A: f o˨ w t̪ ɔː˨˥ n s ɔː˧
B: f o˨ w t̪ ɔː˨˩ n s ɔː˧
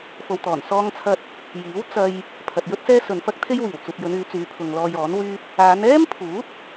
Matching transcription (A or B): B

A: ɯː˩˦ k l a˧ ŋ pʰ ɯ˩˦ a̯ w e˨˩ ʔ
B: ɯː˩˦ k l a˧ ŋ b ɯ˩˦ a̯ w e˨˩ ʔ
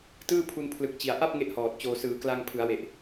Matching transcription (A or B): A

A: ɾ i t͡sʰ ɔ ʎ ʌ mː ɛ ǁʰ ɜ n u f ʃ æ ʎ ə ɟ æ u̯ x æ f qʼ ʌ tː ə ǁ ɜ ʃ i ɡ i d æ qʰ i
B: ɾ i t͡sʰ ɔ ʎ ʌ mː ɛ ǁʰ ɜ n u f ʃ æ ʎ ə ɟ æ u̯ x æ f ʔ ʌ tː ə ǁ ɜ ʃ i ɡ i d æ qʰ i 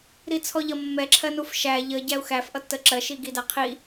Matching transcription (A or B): B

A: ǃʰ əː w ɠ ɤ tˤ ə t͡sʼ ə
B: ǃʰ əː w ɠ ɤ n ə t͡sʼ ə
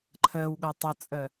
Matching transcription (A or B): A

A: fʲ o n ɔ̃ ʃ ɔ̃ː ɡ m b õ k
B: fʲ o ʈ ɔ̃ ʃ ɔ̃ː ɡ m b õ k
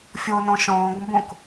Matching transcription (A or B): A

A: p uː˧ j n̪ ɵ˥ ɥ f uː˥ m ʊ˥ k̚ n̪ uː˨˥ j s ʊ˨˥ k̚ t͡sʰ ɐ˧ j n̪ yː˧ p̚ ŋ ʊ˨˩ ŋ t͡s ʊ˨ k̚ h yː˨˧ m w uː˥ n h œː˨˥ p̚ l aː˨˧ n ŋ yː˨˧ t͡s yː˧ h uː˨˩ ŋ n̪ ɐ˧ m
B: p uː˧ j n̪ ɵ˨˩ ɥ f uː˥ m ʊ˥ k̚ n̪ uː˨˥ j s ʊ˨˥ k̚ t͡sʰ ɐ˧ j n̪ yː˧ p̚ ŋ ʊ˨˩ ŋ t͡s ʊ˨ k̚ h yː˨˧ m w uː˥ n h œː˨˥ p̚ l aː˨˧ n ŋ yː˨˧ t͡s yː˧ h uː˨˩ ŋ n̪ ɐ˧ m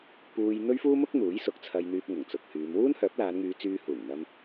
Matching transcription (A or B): A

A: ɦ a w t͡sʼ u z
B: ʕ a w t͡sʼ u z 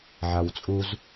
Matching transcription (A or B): B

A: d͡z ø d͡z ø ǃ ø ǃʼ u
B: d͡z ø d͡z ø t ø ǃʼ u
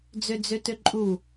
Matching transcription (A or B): B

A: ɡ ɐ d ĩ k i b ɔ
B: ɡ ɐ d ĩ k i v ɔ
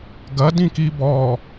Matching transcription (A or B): A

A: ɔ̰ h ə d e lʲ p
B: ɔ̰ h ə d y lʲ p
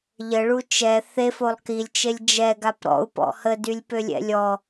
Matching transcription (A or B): B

